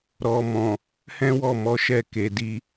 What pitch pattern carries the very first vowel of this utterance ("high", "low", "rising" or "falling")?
low